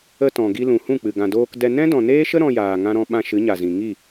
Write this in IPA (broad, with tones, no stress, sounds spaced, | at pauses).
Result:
ə˧ t ɔ̃˨ ɡ i˧ l ũ˨ h ũ˦˨ k͡p ɨ˨ ɡ ã˨ d oː˧ k d ɛ˧ n ɛ̃˦ d ɔ̃˨ n eː˦ ʃ ə˦ ɾ ɔ̃˧ j aː˨ ŋ ã˧ ɾ ɔ̃˧ ɓ ã˧ ʃ ɨ˨˦ ɲ a˨ z ĩ˨ ŋ i˦˨